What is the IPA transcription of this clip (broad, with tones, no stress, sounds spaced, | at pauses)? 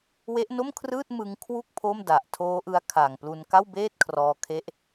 w e˦˥ ʔ n o˥˩ m kʰ r ɯː˥˩ t̚ m ɯ˧ ŋ kʰ w u˥˩ k̚ pʰ o˥˩ m d a˨˩ ʔ tʰ oː˦˥ ʔ ɯ˦˥ a̯ kʰ a˨˩ ŋ p l u˧ n k a˥˩ w b eː˥˩ t̚ kʰ r ɔː˧ kʰ e˦˥ ʔ